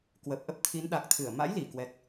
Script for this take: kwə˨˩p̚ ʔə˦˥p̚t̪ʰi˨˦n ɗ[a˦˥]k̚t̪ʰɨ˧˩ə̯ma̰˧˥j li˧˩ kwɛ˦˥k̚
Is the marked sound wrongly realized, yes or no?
yes